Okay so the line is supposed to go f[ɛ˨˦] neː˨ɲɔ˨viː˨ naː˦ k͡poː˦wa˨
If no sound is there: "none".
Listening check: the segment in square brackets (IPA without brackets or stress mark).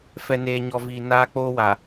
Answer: ɛ˨